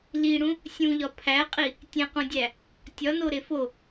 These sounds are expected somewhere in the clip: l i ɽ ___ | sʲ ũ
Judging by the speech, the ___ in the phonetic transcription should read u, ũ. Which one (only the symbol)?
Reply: ũ